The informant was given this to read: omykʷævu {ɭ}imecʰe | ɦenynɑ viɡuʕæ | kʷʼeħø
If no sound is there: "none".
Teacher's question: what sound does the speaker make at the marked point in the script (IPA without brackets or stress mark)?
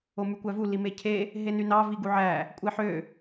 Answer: l